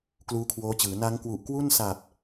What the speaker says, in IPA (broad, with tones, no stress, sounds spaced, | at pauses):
k l uː˦˥ kʰ w oː˦˥ t͡ɕ ɯː˩˦ n a˦˥ ŋ k w u˨˩ ʔ k w u˥˩ n s a˨˩ p̚